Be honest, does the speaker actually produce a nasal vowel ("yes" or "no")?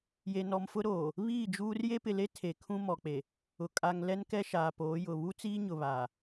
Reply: yes